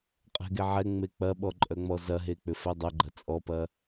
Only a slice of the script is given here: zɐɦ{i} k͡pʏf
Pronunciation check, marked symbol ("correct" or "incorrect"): incorrect